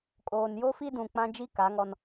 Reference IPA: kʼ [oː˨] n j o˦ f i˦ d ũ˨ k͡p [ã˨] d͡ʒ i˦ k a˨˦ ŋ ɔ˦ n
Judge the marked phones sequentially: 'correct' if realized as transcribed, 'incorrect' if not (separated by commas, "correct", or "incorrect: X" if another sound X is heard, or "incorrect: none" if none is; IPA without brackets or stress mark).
correct, incorrect: ã˦